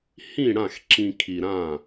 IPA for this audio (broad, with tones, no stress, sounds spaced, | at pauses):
h ĩ˥˨ ɽ ã˥˨ x ǁ ĩ˧ kʰ i˧ ɾ ã˥˨